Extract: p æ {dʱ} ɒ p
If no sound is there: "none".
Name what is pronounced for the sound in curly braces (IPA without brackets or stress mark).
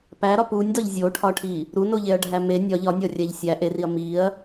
ɾ